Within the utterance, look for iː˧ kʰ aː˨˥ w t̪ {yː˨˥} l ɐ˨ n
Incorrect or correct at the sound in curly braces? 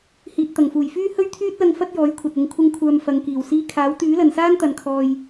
correct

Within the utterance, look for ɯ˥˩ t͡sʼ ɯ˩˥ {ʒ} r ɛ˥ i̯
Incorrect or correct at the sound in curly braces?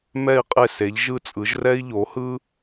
correct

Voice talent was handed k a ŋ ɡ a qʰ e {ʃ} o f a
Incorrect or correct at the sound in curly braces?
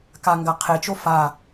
incorrect: t͡ʃ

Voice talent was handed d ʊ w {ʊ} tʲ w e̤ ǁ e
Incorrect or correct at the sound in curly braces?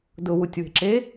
incorrect: u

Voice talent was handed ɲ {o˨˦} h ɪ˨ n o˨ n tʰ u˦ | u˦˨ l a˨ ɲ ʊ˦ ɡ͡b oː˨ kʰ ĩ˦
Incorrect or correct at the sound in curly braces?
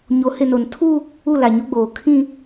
correct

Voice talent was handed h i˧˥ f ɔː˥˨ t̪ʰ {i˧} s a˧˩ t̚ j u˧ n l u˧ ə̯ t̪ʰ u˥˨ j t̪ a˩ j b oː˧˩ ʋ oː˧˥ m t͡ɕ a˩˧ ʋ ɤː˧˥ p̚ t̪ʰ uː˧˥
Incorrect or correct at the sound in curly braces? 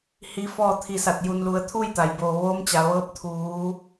correct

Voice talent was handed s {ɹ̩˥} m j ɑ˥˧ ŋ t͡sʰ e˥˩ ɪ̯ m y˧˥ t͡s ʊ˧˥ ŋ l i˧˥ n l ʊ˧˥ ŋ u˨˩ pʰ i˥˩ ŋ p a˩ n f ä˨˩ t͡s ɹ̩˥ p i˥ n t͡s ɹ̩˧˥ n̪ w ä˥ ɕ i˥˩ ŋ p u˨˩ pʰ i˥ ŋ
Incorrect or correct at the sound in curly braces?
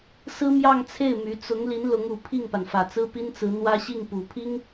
correct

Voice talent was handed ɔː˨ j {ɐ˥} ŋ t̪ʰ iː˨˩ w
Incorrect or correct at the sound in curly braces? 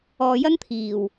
correct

